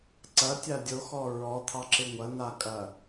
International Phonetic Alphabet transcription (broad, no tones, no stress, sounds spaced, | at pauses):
ǀ ɐ tʲ a dʲ o x ɔ ɹ ɔ t̪ʰ ɑ ǁ ɪ ŋʷ ɐ n a kʼ ɐ